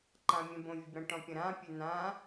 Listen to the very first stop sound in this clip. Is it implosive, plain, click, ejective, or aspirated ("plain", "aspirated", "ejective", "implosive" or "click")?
click